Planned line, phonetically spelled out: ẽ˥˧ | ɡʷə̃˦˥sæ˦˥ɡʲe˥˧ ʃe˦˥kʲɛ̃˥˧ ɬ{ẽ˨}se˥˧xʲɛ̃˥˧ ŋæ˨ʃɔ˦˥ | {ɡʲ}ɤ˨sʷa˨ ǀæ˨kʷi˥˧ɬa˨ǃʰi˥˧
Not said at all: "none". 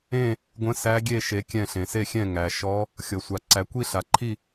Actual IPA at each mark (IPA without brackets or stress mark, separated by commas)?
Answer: ẽ˨, xʲ